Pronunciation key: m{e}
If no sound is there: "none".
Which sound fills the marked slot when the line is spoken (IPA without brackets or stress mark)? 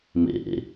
ḛ